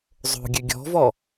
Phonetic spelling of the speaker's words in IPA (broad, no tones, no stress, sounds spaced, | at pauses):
zˤ o̤ ɡʲ ø ɡʲ ɔ̤ v ɔ